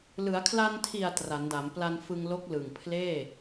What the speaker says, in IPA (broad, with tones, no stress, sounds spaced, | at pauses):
l ɯ˩˦ a̯ kʰ l a˧ n tʰ i˨˩ a̯ t r a˩˦ n d a˩˦ m p l a˧ n f ɯ˧ ŋ l o˦˥ k̚ l ɯ˨˩ ŋ pʰ l eː˥˩